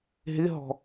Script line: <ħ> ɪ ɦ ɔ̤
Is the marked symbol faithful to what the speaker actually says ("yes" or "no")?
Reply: no